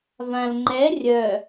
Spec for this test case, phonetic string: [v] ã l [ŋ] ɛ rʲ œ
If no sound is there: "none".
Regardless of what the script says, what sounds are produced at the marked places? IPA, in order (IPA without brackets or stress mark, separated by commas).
v, ŋ͡ǃ